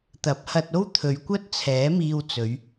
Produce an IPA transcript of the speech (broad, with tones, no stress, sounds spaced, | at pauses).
t̪ ɐ˨˥ p̚ h ɐ˧ t̚ o˥ w t̪ʰ ɵ˨˧ ɥ kʷ ɐ˥ t̚ t͡sʰ ɛː˨˥ m iː˧ w t͡s ɵ˨˧ ɥ